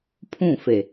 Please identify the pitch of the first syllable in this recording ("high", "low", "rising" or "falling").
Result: falling